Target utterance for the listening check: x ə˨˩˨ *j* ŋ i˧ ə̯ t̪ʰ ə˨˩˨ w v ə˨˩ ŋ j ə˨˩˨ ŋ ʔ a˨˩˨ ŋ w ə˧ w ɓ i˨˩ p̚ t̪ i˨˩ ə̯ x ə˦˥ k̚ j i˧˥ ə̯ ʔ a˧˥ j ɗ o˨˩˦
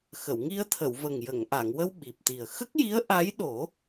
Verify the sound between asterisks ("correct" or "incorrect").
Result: incorrect